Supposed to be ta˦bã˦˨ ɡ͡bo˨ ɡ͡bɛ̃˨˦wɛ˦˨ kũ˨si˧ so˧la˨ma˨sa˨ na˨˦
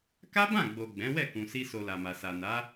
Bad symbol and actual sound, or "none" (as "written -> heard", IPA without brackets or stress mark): t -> k